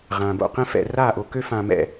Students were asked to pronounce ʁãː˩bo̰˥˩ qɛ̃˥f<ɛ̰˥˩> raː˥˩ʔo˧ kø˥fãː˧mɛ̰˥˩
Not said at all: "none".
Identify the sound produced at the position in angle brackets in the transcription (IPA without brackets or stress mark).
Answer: ɛ̰˥˩